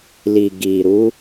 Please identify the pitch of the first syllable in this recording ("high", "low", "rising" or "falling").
low